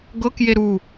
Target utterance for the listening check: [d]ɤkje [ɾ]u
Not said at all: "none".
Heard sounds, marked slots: ɡ, ɾ

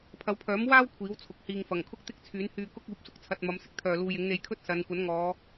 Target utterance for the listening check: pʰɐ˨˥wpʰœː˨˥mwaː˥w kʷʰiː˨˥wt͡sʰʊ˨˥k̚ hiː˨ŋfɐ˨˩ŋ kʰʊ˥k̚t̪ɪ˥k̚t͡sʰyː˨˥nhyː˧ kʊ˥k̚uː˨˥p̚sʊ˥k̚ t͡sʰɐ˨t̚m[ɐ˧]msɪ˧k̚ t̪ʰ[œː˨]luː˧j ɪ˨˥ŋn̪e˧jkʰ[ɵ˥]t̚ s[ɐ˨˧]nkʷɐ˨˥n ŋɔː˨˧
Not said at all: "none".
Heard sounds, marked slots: ɐ˨˧, œː˧, ɵ˥, ɐ˨˧

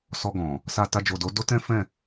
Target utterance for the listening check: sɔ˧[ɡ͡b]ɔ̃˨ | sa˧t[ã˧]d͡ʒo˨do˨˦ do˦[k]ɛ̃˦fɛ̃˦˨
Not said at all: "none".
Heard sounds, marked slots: ɡ, a˧, t

